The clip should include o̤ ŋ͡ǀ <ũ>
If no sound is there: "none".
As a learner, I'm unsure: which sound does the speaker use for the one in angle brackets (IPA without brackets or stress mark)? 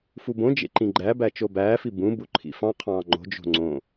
õ